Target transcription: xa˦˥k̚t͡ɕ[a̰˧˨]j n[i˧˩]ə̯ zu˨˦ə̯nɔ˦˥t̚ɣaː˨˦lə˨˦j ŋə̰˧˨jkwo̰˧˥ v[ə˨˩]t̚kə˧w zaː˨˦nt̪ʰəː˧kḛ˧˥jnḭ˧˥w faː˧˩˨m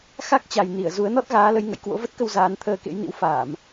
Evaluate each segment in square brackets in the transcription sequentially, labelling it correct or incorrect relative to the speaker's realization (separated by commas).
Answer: incorrect, correct, incorrect